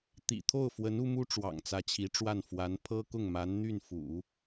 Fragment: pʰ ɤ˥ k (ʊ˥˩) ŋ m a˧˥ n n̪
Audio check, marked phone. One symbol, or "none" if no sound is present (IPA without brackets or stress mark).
ʊ˥˩